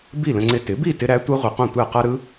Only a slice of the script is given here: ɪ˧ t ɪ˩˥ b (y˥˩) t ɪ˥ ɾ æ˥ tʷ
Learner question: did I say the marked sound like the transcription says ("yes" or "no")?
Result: no